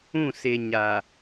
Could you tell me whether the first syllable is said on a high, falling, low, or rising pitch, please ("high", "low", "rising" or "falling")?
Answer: falling